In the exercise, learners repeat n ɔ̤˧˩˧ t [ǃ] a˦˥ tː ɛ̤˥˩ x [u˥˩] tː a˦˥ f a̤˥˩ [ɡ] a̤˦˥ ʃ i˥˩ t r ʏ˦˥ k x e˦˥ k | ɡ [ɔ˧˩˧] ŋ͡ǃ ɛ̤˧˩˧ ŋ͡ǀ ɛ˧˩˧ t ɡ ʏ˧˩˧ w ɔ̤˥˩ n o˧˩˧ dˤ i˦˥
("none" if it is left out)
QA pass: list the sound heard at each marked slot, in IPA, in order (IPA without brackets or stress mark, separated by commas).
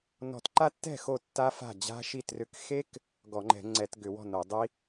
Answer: ǃ, o˥˩, d͡ʑ, ɔ˧˩˧